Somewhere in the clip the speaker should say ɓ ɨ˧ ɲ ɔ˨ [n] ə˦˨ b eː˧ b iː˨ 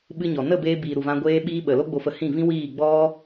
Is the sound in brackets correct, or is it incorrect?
correct